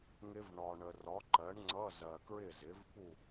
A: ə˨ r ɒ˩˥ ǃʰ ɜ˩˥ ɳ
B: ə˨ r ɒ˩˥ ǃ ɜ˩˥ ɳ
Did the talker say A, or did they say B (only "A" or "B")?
B